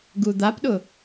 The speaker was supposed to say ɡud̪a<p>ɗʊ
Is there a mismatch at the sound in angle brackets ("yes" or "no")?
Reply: no